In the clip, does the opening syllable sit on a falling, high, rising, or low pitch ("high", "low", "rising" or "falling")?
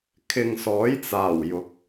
low